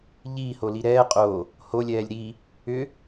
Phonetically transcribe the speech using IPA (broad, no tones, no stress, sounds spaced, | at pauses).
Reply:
ʎ iː h o l i ɾ ɛː qʼ o | h o lʲ ɛː lʲ ɾ i | ʏ